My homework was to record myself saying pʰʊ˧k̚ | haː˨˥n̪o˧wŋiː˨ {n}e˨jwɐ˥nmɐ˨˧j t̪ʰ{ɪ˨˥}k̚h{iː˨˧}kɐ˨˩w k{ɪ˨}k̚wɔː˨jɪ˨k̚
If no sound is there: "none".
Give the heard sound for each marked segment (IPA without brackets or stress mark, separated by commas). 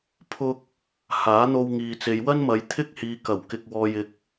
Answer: t͡s, ɪ˥, iː˨˧, ɪ˨